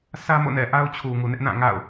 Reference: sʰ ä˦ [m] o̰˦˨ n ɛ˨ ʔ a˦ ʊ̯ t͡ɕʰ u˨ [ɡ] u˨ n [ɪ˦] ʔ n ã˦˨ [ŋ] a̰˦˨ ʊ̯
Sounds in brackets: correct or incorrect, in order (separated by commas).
correct, incorrect, correct, correct